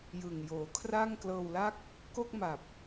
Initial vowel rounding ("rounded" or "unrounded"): unrounded